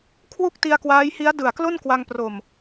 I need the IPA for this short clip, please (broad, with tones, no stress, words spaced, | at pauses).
kʰwu˥˩k̚ti˧a̯kwaː˦˥jhi˦˥a̯ dɯ˨˩a̯klo˥˩nkwa˧ŋpro˨˩m